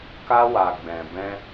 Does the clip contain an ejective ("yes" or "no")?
no